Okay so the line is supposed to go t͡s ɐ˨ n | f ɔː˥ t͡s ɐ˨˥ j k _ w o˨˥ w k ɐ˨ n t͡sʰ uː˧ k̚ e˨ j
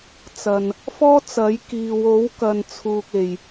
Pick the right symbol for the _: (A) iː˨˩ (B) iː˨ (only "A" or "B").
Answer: B